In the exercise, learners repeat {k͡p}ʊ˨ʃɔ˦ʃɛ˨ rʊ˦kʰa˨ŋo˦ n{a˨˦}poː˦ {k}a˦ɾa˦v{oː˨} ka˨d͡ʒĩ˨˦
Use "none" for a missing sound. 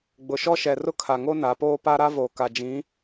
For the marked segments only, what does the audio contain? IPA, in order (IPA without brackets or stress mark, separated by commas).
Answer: ɡ͡b, a˨˦, p, o˨